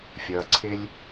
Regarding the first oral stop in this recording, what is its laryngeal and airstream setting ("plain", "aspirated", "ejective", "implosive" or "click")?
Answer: click